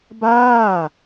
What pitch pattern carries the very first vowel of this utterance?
falling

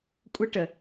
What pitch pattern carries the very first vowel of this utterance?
high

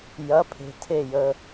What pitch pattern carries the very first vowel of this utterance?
rising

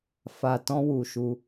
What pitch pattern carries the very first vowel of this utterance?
low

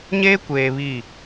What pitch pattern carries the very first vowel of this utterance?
high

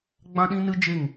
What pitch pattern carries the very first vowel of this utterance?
high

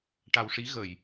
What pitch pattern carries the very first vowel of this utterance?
low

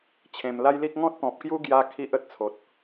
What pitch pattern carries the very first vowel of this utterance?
low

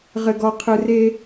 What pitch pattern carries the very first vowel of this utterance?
low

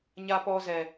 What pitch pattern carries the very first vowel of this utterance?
high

